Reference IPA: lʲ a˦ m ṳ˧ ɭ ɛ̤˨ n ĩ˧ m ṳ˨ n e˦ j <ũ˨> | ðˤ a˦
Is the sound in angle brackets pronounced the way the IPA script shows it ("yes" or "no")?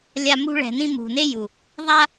no